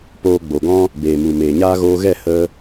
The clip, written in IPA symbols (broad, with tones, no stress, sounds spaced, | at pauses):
p oː˧ ɡ͡b o˨ ɡ ɔ̃˦ | b eː˨ m u˨ m eː˨ ɲ aː˧ ɣ oː˧ ɣ ɛ˦˨ h ə˧